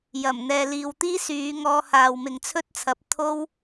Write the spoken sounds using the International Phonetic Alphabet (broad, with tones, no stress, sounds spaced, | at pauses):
j ɐ˨˩ m n̪ ɛː˨ l iː˨ w t̪ iː˥ s yː˨˧ ŋ ɔː˧ h aː˨ w m ɪ˨ ŋ t͡sʰ ɵ˥ t̚ t͡sʰ ɐ˨ p̚ t̪ʰ o˥ w